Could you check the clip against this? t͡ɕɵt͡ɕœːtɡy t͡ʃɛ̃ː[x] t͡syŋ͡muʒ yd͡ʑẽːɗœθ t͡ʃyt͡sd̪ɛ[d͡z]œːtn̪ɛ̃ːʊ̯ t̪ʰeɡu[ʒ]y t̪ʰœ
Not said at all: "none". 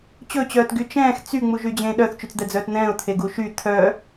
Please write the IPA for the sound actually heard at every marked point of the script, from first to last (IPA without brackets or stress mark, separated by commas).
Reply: x, d͡z, ʃ